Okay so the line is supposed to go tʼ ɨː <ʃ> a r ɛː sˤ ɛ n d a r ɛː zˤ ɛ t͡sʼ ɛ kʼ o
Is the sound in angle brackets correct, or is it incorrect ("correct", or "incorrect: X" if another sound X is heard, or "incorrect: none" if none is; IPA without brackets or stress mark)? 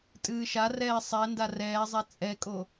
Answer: correct